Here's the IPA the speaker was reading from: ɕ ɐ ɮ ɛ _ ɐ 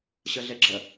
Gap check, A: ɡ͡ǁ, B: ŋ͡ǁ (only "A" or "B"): A